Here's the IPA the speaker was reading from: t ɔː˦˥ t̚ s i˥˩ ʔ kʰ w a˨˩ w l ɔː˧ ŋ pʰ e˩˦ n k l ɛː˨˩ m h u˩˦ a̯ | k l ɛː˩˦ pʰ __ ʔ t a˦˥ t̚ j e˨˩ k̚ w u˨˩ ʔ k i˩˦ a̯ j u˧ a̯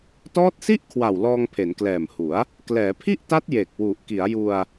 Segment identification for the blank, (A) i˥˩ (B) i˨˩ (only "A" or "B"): A